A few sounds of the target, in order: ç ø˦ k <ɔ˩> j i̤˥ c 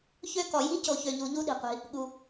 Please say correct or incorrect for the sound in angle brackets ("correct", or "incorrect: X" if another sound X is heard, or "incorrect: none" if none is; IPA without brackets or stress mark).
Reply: correct